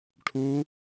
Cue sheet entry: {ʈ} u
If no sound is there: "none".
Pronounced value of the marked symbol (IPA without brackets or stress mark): ʈʰ